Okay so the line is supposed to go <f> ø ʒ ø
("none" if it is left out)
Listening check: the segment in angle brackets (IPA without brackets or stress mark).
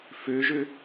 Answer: f